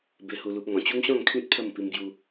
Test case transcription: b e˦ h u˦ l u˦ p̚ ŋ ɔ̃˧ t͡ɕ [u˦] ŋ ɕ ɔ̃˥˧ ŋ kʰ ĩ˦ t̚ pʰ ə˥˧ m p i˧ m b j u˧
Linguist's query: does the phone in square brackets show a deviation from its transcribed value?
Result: no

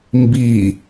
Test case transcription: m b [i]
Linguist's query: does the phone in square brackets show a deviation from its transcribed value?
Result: no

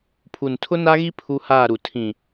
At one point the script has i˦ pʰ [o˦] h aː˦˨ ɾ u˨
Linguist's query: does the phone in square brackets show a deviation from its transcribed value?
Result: yes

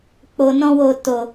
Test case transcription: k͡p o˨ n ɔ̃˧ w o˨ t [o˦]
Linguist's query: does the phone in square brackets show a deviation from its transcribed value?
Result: yes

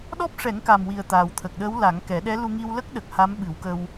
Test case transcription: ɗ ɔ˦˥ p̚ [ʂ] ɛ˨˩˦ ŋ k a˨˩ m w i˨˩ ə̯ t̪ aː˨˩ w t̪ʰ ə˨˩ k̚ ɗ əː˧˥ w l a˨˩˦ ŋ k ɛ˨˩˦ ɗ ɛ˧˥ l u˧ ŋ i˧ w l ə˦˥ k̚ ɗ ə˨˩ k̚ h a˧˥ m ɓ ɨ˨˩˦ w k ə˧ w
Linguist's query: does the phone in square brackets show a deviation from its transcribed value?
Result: no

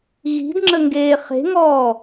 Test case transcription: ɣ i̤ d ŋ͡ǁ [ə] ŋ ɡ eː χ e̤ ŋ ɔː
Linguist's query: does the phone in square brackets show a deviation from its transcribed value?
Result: no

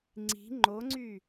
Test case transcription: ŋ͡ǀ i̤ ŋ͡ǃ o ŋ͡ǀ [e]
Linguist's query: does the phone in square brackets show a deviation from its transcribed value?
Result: yes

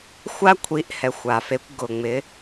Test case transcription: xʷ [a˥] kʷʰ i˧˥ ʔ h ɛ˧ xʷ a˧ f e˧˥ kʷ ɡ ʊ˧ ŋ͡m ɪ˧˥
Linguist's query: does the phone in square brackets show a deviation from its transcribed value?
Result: no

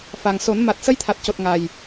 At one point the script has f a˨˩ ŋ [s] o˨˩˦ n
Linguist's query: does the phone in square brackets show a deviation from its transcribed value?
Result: no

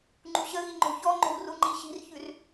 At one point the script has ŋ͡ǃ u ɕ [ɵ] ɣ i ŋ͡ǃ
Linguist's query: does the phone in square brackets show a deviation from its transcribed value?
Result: yes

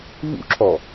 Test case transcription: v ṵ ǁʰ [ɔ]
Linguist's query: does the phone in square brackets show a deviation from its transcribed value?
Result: no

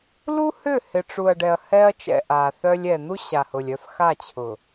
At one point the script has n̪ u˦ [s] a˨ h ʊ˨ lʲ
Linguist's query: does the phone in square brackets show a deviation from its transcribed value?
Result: yes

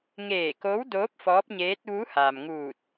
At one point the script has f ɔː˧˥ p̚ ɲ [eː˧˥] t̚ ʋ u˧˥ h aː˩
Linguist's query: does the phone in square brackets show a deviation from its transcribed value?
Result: no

